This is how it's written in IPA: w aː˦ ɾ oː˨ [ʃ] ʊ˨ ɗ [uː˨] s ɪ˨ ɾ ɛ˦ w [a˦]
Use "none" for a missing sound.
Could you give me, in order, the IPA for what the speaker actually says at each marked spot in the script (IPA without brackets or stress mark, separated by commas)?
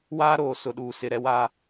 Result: s, uː˨, aː˦